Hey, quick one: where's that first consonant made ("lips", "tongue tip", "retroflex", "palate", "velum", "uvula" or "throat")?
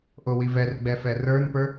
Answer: throat